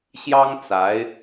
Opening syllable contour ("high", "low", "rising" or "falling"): high